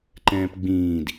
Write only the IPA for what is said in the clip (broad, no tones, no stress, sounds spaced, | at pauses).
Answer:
ǃ ɛ̃ː p ɡ͡b ĩː d